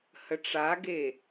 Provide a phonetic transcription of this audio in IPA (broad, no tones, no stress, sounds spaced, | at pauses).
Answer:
h ə ʈ͡ʂ a ɡ e